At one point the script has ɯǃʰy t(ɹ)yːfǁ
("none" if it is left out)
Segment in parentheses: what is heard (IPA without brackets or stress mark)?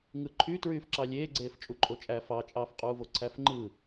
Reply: ɹ